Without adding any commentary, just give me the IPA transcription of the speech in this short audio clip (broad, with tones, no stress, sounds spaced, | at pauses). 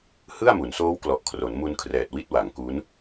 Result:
h ɯ˥˩ a̯ m u˩˦ n s oː˦˥ w k l ɔ˨˩ ʔ kʰ r o˩˦ n m u˧ n kʰ r ɛː˨˩ t̚ w i˦˥ t̚ w a˩˦ ŋ k u˦˥ n